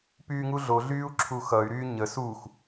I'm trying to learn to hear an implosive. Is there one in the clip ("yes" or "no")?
no